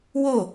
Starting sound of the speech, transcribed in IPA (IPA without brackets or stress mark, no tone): w